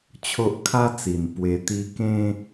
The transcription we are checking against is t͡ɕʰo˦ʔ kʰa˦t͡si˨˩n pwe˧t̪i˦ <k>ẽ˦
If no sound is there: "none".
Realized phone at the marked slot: k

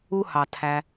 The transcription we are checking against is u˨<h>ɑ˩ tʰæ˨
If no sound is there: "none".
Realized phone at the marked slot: h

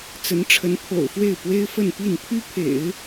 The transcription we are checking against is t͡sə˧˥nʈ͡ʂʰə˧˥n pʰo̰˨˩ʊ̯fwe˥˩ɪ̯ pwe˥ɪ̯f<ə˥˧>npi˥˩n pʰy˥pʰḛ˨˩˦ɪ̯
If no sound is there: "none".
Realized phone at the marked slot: ə˥˧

